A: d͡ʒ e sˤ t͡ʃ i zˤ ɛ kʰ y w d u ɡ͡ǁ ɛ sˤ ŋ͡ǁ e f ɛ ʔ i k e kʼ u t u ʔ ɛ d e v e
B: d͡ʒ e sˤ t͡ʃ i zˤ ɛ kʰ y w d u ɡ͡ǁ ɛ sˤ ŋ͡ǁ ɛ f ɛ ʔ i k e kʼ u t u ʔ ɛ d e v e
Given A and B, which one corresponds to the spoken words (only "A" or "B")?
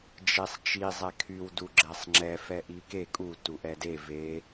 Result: B